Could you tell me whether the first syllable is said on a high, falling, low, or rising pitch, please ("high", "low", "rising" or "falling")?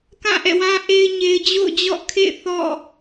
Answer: falling